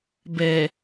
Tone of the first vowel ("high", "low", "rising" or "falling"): low